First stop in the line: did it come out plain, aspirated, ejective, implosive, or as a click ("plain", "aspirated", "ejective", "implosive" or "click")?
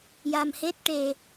plain